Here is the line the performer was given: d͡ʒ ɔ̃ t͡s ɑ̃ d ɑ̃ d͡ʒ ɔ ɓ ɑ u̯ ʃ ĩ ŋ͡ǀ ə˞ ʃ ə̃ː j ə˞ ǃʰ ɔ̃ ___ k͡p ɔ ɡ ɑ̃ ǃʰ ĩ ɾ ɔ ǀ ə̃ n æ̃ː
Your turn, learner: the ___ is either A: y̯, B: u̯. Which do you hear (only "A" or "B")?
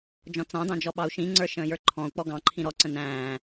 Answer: B